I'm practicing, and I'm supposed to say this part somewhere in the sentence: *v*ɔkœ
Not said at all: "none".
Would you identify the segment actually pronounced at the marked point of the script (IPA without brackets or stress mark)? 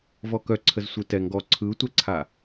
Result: v